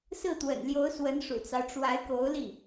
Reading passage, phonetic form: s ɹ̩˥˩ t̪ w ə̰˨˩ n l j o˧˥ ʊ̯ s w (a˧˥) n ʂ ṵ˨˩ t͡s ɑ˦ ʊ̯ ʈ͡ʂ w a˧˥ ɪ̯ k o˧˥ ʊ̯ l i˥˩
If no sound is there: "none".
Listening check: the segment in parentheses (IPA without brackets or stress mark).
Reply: ə˧˥